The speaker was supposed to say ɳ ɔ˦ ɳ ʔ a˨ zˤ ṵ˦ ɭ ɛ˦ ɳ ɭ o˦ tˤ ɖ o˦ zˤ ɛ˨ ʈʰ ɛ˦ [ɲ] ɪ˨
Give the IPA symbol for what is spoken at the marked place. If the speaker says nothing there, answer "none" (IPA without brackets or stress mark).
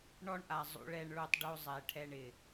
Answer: ɳ